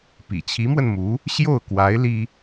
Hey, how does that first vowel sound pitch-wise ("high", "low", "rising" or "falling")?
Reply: low